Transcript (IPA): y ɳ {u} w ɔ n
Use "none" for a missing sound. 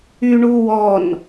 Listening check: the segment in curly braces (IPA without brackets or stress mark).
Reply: u